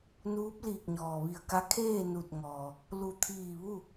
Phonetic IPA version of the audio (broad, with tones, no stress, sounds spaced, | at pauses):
n uː˧˥ p̚ l iː˧˩ k̚ ɲ ɔː˩ ʋ i˧˩ ə̯ k a˧˥ kʰ eː˥˨ n u˧˩ t̚ ŋ ɔː˩ | l u˧˩ t̪ʰ iː˧˩ ʋ u˥˨